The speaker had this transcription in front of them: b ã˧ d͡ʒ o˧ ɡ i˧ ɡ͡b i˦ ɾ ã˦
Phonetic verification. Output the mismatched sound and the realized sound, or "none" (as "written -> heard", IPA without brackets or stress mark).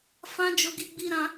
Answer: b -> f